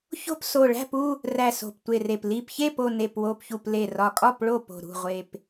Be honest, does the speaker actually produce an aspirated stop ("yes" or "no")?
no